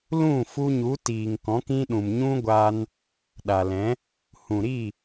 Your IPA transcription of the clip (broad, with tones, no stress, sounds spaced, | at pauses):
l ũ˦˨ f u˧ ɲ u˨˦ t iː˨ ŋ k ɔ̃˨˦ k ĩ˦ ɗ ũ˨ m ɲ ũ˦ ɡʷ a˧ n | ɗ a˨ l ɛ̃˨˦ | h ũ˨ ɾ i˦˨